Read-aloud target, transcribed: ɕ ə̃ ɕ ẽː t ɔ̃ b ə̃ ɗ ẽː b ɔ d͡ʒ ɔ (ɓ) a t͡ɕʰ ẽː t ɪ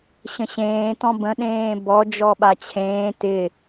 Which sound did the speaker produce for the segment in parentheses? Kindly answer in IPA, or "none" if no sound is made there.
ɓ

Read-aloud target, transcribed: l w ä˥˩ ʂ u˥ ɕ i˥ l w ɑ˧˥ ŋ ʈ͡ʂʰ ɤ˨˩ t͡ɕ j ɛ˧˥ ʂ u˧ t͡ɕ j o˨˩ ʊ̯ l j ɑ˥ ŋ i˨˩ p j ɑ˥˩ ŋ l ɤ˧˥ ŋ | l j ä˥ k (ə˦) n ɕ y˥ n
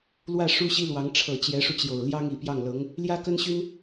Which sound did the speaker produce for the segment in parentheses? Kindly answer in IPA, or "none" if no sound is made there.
ə˥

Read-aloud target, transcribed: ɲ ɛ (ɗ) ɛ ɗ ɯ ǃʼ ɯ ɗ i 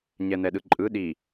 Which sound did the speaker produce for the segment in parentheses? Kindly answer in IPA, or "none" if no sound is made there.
n̪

